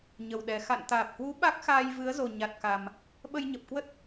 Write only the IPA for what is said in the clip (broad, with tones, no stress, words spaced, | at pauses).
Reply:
ɲə˨˩wɗɛ˨˩ xa̰˧˨nt̪aː˨˩p̚hwu˨˦ ɓa˦˥k̚xaː˧jvɨ˨˦ə̯zo˨˩ ɲa˨˩t̚ka˨˩m | ɓə˧jɲə˨˩p̚kwə˦˥t̚